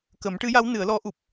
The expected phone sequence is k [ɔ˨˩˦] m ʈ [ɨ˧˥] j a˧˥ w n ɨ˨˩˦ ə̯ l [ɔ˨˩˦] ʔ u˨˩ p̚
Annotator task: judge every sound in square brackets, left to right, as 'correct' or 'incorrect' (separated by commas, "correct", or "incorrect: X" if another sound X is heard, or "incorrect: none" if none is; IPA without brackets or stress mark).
incorrect: ə˨˩˦, correct, incorrect: ɔ˧˥